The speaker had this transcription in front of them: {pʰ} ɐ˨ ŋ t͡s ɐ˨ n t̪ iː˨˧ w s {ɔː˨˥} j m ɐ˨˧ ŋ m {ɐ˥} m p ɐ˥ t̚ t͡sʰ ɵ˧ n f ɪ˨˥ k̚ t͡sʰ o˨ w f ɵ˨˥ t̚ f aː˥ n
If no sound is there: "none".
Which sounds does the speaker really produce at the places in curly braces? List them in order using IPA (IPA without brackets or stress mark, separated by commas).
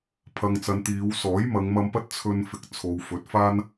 pʰ, ɔː˨˥, ɐ˧